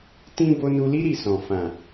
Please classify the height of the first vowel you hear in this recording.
high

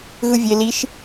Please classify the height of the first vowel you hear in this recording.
high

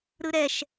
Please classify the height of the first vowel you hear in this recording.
high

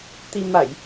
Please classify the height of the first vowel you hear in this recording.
high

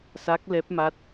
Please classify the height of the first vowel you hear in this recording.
low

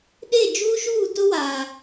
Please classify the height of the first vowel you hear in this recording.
mid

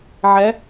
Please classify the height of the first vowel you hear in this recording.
mid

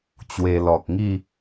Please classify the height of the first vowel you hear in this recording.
mid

